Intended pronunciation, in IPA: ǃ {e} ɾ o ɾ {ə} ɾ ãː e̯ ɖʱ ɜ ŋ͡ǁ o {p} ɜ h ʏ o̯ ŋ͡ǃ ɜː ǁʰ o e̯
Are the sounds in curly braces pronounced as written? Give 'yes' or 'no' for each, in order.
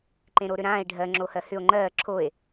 no, no, no

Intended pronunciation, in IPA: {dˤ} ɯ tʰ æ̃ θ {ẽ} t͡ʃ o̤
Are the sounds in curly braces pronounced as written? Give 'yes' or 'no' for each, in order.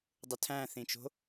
yes, no

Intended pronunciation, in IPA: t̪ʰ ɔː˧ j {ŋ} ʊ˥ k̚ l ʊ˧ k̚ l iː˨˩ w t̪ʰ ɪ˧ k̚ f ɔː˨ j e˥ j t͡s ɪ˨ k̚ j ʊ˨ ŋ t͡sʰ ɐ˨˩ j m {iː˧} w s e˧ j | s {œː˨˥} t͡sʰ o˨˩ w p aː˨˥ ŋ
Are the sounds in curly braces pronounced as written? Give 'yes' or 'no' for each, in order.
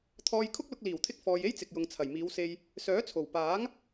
no, no, yes

